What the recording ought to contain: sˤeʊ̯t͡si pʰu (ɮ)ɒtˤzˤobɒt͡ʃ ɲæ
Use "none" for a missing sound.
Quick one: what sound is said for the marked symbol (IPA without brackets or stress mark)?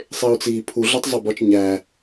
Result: ɮ